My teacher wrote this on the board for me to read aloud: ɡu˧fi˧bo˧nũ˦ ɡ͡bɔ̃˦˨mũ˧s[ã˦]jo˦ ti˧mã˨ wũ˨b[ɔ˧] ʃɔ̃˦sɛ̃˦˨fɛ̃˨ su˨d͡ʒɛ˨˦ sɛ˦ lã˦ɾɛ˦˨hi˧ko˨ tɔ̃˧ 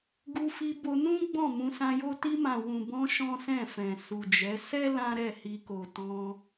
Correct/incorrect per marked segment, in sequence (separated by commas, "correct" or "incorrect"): incorrect, incorrect